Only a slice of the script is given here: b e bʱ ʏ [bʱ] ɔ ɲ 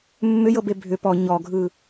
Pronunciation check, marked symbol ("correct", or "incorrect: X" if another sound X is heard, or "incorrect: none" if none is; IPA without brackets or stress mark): incorrect: p